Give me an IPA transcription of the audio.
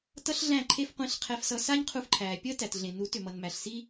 tʌ˦ɬɮæ̃˦˨ ǃʰe˦fqʷĩ˧ɬqʰɛ˧fsʌ˧ sa˦ɲqʰu˧fǃʰæː˨ pʲəː˦tæ˨tɮẽ˨nu˨˦ tʏ˨mʌ˨nmæ˨ɬ si˦

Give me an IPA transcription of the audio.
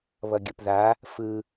βʌɡʲəpða | fɯ

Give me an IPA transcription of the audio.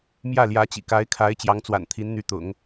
mjä˥˩ljä˧˥t͡ɕḭ˨˩ ka˧˥ɪ̯kʰa˧˥ɪ̯ t͡ɕjɑ˧˥ŋt͡swa̰˨˩nt̪ʰi˧˥nn̪y˧˥ t̪ʊ̰˨˩˦ŋ

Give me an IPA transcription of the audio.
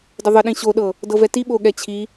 dəðˤəɗĩ ɕoɗɤ | dɤvɛti ɓoɠɛt͡ɕʰi

